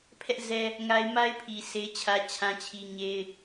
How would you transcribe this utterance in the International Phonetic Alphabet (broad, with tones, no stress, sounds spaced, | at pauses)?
pʰ ɛ˦ ʔ z ɛ˦ | ŋ a˦ ɪ̯ m a˦ ɪ̯ pʰ i˨ s e˦ ɪ̯ t͡ɕʰ ä˦ t͡ɕʰ ã˦ t͡ɕʰ i˦ ɲ e˦ ɪ̯